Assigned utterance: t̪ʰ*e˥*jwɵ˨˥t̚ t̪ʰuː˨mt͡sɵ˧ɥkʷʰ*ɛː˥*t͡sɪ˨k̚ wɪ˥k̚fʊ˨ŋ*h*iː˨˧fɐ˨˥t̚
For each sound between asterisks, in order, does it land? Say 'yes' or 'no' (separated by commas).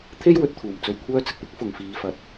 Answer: yes, no, no